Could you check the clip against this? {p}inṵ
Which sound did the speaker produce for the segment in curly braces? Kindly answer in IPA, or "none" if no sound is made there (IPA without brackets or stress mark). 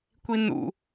kʷ